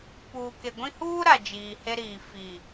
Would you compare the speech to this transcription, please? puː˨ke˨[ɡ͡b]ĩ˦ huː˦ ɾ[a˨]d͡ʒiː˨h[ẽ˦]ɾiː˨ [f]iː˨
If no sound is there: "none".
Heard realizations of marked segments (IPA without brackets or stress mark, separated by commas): ɡʷ, a˨, e˦, f